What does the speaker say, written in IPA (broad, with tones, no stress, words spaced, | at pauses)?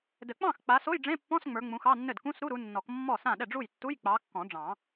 dɘ˨˩˦k͡pɑ̃˥˩xk͡pa˨˦ so˧˥˧jɖ͡ʐẽ˧˥˧pːɔ̃˧˥˧s ŋ͡mə˞˨˦ŋ͡mũ˨˦xɑ˧˥˧nːɘ˥˩d kũ˧˥˧sɾu˧˥˧ ɾu˨˦nːɔ˨˩˦kmːɔ˥˩sã˥˩ ɗɛ˥˩ɖ͡ʐu˥˩j tːu˧˥˧jk͡pɑ˨˦kːɔ̃˨˩˦ɖ͡ʐɑ̃˨˩˦